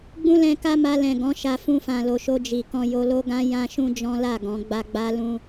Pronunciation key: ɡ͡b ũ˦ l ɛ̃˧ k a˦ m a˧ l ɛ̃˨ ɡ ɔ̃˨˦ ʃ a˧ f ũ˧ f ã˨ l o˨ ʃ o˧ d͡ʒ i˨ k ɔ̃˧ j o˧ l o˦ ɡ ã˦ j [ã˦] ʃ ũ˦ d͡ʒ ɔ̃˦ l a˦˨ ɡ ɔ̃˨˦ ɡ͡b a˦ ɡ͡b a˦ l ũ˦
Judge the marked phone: correct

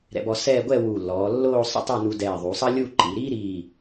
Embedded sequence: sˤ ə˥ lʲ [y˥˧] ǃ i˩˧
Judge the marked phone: incorrect: u˥˧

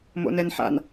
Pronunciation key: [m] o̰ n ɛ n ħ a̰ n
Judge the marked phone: correct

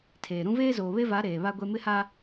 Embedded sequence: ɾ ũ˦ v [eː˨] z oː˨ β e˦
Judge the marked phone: incorrect: eː˦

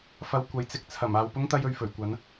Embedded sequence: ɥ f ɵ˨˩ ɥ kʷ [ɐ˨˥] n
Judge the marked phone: correct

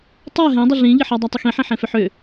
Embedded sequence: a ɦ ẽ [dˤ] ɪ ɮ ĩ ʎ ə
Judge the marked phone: correct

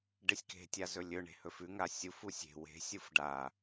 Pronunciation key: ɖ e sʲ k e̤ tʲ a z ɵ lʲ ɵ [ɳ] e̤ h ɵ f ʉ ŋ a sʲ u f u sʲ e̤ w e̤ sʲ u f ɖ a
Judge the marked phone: correct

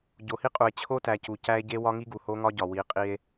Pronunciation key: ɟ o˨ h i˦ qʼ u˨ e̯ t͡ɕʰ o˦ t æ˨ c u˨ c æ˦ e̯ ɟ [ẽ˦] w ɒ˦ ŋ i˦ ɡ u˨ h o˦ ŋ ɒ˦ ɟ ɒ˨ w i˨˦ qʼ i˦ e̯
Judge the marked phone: incorrect: e˦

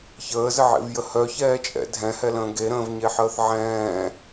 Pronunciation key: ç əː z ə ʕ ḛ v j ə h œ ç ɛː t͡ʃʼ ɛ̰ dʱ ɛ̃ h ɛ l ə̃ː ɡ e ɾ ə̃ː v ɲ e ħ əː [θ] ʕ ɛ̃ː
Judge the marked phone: correct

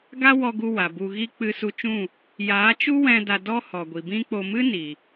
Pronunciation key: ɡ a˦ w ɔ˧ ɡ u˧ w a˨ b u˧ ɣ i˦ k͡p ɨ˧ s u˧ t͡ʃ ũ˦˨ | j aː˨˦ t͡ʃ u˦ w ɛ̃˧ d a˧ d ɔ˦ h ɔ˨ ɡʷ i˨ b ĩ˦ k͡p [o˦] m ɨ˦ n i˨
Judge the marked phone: incorrect: o˧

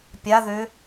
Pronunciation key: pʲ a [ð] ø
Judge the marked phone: correct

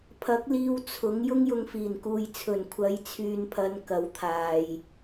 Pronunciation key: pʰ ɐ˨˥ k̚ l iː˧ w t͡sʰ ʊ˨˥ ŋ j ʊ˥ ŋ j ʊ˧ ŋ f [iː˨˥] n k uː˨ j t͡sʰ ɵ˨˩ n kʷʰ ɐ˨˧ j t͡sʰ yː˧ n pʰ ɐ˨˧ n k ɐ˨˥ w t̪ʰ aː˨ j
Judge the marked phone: incorrect: iː˨˩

